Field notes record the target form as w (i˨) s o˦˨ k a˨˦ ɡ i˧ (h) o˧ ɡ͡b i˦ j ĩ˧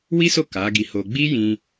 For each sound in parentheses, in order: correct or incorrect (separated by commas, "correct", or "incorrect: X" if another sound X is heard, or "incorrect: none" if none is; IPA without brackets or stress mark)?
incorrect: i˦, correct